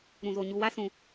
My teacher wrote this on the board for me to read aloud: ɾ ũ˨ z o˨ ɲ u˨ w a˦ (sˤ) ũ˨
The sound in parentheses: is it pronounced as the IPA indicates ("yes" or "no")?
no